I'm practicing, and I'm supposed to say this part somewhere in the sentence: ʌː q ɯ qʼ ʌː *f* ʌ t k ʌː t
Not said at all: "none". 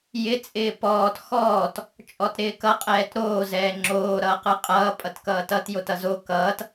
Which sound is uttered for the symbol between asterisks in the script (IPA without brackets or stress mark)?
pʼ